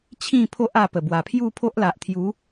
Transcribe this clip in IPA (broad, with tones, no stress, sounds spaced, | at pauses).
t͡ɕʰ ĩ˥˧ pʰ o˦ ʔ a˧ p ə˨˩ b w a˨˩ pʰ j u˥˧ pʰ o˦ ʔ l a˨ ʔ t̪ʰ j u˨˦